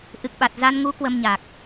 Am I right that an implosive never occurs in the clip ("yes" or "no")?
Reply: no